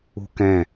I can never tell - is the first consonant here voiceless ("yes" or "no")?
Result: yes